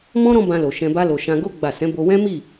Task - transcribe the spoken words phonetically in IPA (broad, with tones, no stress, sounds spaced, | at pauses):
m ɔ̃˦ ɾ ɔ̃˦ b ã˧ l o˨ ʃ ɛ̃˧ b a˦ l o˧ ʃ ã˧ ɡ o˦ ɡ͡b a˦˨ s ɛ̃˨˦ b o˧ w ɛ̃˦ m i˦˨